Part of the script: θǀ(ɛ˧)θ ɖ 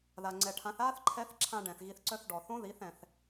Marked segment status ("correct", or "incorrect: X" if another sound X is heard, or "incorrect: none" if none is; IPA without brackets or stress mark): incorrect: œ˧